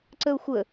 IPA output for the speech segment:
ǀ ə ʊ̯ xʷ ə

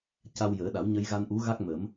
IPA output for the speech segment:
c a˧ w j əː˨˩˦ ɗ a˨˩˦ w ɲ ə˧ j ɣ a˧ n ʔ u˧˥ ɣ a˦˥ k̚ m ə˨˩˦ m

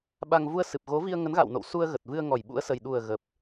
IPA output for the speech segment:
ɓ a˧ ŋ v u˧ ə̯ s ɨ˨˩ p̚ ɣ o˨˦ v i˧ ə̯ ŋ ə˨˦ n ɣ a̰˧˨ w n o̰˧˨ w s u˧ ə̯ ɣ ə˨˩ t̚ v ɨ˧ ə̯ ŋ ɔ˧˩ j ɓ ṵ˧˥ ə̯ s ə˨˩ j ɗ u˨˩ ə̯ ɣ ə˨˩ p̚

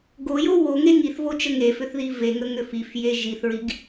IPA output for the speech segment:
ɡ o j o w o ŋ e ŋ i θ v o t͡ʃ ə ŋ e f ʏ θ ð i v e ŋ ə ŋ ʏ f i f j e ʒ i θ ɹ i ɡ

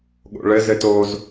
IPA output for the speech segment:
ɠ o̰ ɭ ɘ z ɘ t o z

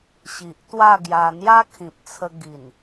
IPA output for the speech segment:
ɕ i˨ ʔ t̪ w a˥˧ ɡ j a˧ n̪ j a˦ kʰ ĩ˨ p̚ t͡sʰ ə˧ ɡ i˨˩ n

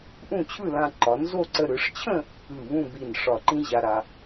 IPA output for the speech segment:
ʔ ũ˥˧ t͡ɕʰ ɯ˥˧ l ã˧ ǃ ɒ˩˧ n z o˥˧ ǀ ə˧ ɾ ɯ˩˧ ʂ t͡ɕʰ ə̃˥˧ | ɯ˧˩ β ũ˥˧ b i˧˩ n ʂ ɒ˧˩ ǃ ĩ˥ ʑ a˧ ɾ a˧

